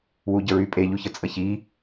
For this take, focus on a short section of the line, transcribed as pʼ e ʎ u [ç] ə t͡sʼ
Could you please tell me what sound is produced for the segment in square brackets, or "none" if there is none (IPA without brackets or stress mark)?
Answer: ç